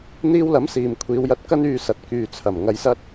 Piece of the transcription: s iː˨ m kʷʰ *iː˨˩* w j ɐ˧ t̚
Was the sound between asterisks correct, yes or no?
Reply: no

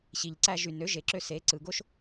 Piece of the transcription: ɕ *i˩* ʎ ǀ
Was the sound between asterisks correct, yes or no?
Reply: yes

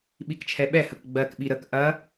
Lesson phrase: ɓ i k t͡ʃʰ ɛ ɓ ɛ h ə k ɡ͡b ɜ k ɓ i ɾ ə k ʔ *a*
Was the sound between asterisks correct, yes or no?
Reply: no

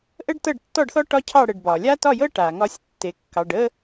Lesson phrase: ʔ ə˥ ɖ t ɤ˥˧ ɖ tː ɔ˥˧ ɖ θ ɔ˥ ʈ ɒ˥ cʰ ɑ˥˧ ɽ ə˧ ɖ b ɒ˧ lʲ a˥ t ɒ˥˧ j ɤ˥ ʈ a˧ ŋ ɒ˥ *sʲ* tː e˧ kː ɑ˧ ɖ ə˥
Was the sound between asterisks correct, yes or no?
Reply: yes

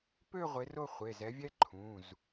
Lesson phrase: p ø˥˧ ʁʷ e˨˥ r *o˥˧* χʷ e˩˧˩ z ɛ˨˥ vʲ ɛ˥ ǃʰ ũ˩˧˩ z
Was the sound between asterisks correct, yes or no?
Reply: yes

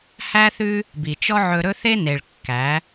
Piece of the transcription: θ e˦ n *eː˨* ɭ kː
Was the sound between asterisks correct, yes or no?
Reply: no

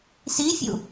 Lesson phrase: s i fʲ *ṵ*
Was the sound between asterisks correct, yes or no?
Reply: yes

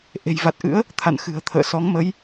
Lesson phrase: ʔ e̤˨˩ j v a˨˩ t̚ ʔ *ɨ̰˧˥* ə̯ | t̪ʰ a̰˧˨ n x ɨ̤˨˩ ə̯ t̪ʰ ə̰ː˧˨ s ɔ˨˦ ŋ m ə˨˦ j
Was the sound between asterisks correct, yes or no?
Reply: yes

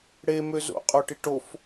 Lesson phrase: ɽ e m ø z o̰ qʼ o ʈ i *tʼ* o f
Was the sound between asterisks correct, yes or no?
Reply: no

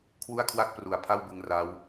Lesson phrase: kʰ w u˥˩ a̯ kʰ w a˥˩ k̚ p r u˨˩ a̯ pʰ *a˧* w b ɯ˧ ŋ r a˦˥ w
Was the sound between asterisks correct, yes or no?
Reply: no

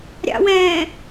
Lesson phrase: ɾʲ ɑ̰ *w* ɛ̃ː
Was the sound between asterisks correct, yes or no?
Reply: yes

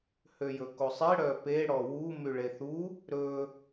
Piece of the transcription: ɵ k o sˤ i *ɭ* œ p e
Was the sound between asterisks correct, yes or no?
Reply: no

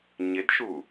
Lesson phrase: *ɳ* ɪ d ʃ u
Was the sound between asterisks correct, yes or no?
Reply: no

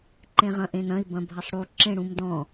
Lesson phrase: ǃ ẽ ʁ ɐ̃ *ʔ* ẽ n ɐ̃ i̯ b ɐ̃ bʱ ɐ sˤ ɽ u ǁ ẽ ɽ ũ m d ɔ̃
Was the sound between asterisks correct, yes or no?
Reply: yes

